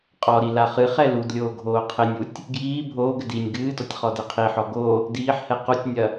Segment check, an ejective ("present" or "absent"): present